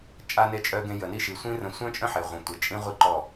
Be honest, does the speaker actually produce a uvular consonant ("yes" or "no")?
yes